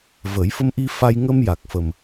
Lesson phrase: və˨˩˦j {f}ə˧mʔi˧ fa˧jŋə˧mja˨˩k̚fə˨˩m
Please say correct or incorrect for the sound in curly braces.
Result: correct